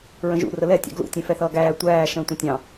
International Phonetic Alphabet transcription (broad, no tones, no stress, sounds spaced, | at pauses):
ɹ ə̃ ʒ ṵ r ə l ɛ tʲ ɑ̰ ɡ l ṵ tʲ ɛ̃ f ɛ θ ʌː ɡ æː tʷ æː ʃ ə̃ː tʷ ə̃ tʲ ɑ̃